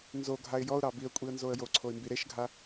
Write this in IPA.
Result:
nzoɡʱaɪ̯ jɔʊ̯ɾɑ biə̯kʷʼiə̯nzoə̯ joǀʰoɪ̯mbi ɾeʃɡʱa

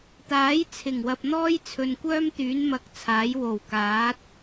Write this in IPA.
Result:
t̪aː˨˥jt͡sʰɪ˨˩ŋwɐ˨p̚ n̪ɔː˥jt͡sʰɵ˨nkʷœː˥mt̪yː˨˥n mɐ˧k̚t͡sʰaː˨˥j wo˨˩wkaː˨˥t̚

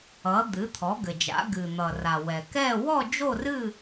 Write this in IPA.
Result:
ʌ˩˧ d̪ɨ˩˧t̪ʰɔ˩˧ɡɘ˩d͡ʒa̰˩˧ ɡɨ˩n̪ʌ˩ra˩ wɛ˩kɛ˥˧ wɔ˥˧d͡ʒo˥˧rɨ˥˧

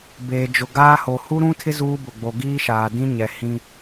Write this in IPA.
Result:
beː˨d͡ʒʊ˨ ɡaː˦ho˨ hu˦ɾũ˦tʰɪ˦ zuː˦bʊ˨ ɡ͡bo˨ɡiː˦ʃaː˨dĩ˦ ɲɛ˨hĩ˦

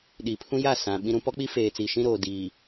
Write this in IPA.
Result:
ɗi˨pʰũ˦ja˦˨sã˨ ɓĩ˦ɾũ˦ pɔ˦k͡pi˦feː˨t͡si˨ ʃĩ˦ɾoː˨diː˨

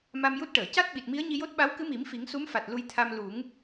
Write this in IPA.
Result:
ma˧mju˦˥t̚ʈəː˨˩˨ ca˦˥t̚ɓi˨˩t̚ mi˧˥ə̯ɲi˧jo˦˥t̚ɓa˧˥w kɨ˧˥mi˨˩˦m fi˨˩˦ŋsu˧˥mfa˨˩t̚ lu˧jt̪ʰa˧m lu˨˩˦ŋ

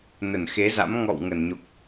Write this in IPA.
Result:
nə˧˩nxe˨˦za̰˧˥m ŋɔ̰˧˨w ŋə˧˩nɲo˨˩k̚

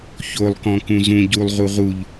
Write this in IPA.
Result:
çolˠkɔ̃ kũzũ ɟulˠʁu ʁuʎ

